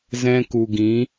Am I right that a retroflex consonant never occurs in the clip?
yes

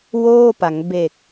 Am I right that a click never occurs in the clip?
yes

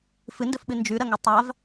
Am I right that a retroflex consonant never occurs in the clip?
yes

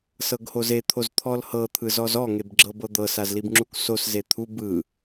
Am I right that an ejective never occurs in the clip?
yes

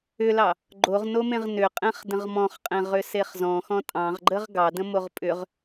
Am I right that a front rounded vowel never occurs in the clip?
no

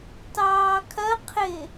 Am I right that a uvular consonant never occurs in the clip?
no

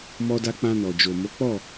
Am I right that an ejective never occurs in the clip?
yes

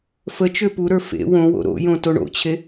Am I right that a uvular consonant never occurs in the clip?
yes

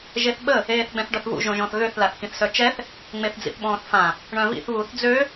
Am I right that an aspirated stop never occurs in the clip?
yes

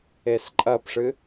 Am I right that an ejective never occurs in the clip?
no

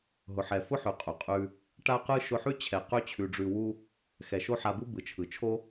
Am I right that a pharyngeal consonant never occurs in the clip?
no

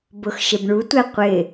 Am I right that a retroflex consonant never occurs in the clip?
no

